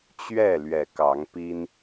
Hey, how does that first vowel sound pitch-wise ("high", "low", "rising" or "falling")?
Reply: falling